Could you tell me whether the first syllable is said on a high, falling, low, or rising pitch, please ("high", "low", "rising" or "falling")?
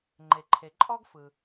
low